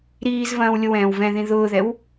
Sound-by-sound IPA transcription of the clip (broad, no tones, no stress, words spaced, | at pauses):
ɾiːzvɐ̃ːw lʲʊwɛ̃ːwvɛ̃ðĩ ðʊːðɛw